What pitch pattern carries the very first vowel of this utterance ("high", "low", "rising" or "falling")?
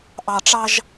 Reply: low